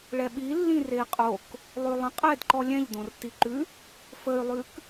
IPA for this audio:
ɭ ɛ ɓ i lː ĩ r e i̯ qʼ o k | lˠ ʉ lˠ ə̃ qʼ ɛ d ǃ ɔ lʲ ɛ̃ ʎ d õ r t i ǃ ʉ | f ə y̯ lˠ ʉ k

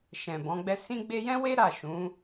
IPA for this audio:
ʃ ɛ̃˨ b ɔ̃˨˦ ɡ͡b ɛ˦ s ĩ˧ ɡ͡b e˧ j ɛ̃˦ w e˦ ɾ a˦˨ ʃ ũ˨˦

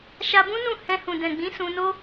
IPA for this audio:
ʃ a˧ b ũ˦ n ũ˦˨ h ɛ̃˧ h ũ˨ d ɛ̃˨ ɡ͡b ĩ˨˦ s ũ˧ n o˦

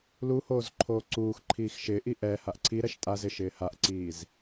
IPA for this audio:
l u h oː z ǃʰ oː ǀ uː x ǃʰ iː x ʃ ɪː ʔ i ʔ ɛ h a ʔ ǀʰ i ɾ ɛ ʃ tʼ a z ɪ ʃ ɪː h a ʔ ǀ iː z

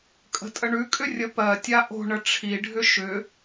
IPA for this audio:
kʼ ə̤ tʼ ə ɳ ʉ kʼ ʏ rʲ ə p ɜ tʲ a ʔ o̤ ɳ ə ʈ͡ʂʰ i ɖʱ ʏ ʃ ʏ

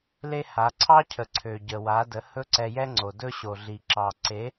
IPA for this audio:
l e˦ h a˨˦ ǀʰ ɑ˦ cʰ ə˨ ǀʰ ø˨ ɟ ə˨ w a˨˦ d ə˨˦ h ɵ˦ ǀ ɛ˧ j ɛ˦ ŋ͡ǀ o˨ d ɵ˦ ɕ o˨ ɮ i˨ ǁ ɑ˨ ǀ e˨˦

